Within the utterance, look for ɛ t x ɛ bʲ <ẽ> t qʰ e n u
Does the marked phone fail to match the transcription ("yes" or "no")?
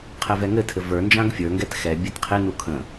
yes